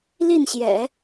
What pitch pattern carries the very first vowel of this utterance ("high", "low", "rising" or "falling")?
falling